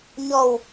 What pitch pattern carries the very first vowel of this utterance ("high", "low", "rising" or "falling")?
low